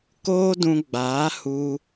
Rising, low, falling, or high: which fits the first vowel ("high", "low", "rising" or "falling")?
high